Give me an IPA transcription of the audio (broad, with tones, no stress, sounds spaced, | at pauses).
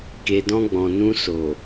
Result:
k e˨ d ɔ̃˧ ɡ͡b ɔ̃˨ n ũ˧ s o˨